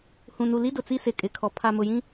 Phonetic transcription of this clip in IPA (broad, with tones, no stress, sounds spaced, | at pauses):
h ũ˨ n u˨ l i˦ d ʊ˨ t͡s i˦ s ɪ˨ kʼ ɪ˨ kʰ ɔ˨ pʰ a˨ m ʊ˨ j ĩ˦